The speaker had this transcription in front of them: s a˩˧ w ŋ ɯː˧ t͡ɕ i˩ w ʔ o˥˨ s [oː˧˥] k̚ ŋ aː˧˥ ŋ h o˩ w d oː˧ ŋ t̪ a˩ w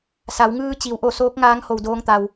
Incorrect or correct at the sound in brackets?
correct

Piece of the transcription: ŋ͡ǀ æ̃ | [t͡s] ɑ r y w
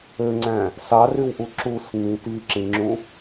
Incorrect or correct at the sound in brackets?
incorrect: s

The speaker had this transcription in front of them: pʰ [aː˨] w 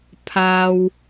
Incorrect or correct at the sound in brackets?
correct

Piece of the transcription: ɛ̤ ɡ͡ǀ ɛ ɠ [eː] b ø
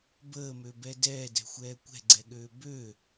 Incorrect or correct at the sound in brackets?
incorrect: øː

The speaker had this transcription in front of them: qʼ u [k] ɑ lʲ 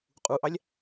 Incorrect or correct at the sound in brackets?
incorrect: ʔ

